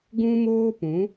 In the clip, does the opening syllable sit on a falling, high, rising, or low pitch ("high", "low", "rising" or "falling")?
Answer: high